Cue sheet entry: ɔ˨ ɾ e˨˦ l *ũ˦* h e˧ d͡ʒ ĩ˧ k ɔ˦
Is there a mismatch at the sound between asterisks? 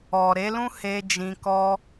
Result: no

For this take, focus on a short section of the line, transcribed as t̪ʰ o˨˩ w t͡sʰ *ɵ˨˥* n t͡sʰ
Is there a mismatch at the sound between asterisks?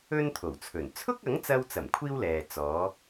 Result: yes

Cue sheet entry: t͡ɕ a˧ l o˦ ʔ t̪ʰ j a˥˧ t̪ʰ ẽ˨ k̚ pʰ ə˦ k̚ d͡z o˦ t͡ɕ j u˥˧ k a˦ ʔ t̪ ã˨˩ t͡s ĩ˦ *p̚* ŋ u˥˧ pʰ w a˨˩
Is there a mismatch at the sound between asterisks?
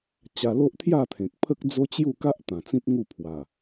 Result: no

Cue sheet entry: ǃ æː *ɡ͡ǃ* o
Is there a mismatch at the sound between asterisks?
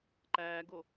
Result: yes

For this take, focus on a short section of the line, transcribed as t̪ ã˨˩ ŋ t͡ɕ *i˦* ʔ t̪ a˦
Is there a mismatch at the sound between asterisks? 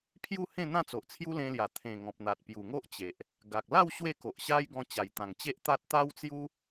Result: yes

